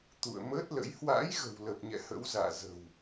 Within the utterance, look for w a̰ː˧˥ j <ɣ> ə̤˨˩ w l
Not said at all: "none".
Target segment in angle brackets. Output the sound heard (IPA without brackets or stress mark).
ɣ